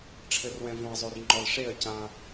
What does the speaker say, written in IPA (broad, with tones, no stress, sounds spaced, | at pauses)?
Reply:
ʈ͡ʂʰ ɘ˨ r w ɛ̃˨ v õ˨ ɐ̯ zˤ o˨ r ŋ͡ǃ ɔ˨ l ʂ e˦˨ ɐ̯ c ã˦